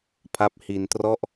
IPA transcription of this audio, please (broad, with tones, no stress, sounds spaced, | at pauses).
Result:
pʰ a˦˥ p̚ h i˧ n t r ɔ˥˩ ʔ